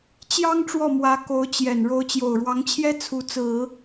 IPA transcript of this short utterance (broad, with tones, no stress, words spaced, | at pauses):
t͡ɕjɑ˥ŋ ʈ͡ʂwɔ˥˩ mwä˧˥ ko˧˥ʊ̯t͡ɕjɛ˨˩n ɻo˧˥ʊ̯t͡ɕjo˨˩ʊ̯ɻwɑ˧˥ŋt͡ɕʰjɛ˥ t͡sʰu˧˥t͡sɹ̩˨˩˦